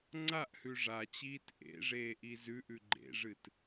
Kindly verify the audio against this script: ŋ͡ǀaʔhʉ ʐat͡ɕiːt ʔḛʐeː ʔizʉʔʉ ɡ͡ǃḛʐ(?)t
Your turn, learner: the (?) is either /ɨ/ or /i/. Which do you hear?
ɨ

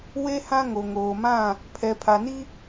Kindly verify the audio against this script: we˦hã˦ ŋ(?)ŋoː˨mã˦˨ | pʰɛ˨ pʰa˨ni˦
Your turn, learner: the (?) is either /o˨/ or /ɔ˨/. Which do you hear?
o˨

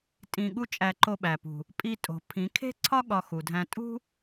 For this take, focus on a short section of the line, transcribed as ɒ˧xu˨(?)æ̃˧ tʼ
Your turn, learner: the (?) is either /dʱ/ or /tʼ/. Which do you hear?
dʱ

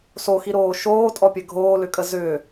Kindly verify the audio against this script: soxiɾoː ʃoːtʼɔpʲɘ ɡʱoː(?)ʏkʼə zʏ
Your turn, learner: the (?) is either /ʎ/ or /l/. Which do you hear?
l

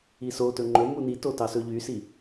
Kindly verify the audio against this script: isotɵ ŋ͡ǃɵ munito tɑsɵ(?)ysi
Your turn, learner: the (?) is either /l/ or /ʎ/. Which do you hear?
ʎ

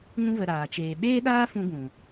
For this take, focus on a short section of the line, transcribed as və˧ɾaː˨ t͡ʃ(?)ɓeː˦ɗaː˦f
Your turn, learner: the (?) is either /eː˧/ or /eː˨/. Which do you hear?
eː˨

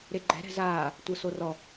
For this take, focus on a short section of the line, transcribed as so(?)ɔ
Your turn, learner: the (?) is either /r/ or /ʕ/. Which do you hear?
r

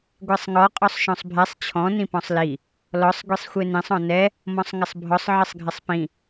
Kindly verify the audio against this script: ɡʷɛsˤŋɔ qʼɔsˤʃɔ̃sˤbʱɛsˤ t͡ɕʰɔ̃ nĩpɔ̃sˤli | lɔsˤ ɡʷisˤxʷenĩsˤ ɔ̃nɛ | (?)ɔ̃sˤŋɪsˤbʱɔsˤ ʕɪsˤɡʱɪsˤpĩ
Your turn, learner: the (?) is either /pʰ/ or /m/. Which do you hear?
m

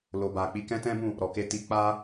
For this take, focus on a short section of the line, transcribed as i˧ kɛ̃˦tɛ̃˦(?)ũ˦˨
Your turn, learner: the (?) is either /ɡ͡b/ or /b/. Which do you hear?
b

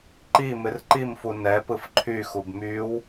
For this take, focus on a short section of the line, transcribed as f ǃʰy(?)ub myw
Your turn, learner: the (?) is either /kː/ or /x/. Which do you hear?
x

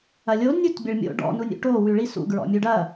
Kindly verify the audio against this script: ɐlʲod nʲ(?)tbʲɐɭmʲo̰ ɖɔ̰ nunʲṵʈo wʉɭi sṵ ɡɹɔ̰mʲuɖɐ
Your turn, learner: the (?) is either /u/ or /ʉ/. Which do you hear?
u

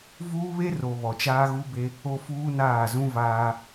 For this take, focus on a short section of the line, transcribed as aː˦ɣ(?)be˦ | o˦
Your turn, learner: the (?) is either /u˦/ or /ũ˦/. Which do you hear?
u˦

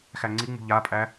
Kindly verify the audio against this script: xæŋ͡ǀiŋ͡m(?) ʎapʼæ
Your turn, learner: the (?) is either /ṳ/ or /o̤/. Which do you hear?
ṳ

